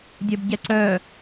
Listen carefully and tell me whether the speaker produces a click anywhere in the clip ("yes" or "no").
yes